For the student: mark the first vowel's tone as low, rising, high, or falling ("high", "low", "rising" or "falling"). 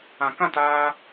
low